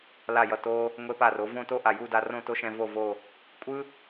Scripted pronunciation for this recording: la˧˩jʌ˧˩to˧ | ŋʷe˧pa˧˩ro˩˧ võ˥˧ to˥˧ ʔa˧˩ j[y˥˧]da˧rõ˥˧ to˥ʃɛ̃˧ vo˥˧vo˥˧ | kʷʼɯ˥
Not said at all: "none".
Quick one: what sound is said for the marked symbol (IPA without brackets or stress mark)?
u˥˧